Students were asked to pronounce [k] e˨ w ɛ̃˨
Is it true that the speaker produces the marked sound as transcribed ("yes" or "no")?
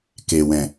yes